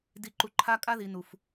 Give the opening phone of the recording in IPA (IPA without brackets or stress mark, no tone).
d